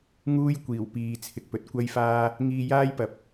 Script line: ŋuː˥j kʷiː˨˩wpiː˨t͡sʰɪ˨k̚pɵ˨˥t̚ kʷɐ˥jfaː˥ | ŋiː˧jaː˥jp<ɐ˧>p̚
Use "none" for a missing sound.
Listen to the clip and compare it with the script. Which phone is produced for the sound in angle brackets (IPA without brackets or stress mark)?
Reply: ɐ˨˥